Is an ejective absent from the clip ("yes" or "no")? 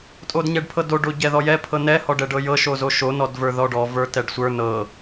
no